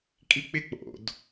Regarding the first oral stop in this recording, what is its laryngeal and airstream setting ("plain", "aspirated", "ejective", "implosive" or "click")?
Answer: ejective